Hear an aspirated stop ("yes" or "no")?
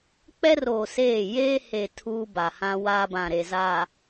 yes